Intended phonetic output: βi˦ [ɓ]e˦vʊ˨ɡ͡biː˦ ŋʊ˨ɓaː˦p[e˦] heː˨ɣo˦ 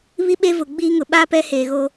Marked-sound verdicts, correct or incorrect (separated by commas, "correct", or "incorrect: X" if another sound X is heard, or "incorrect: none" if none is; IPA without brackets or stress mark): correct, incorrect: ɛ˦